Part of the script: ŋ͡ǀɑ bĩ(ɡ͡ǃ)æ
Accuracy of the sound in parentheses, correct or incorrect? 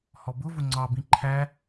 incorrect